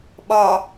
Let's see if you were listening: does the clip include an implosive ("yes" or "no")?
yes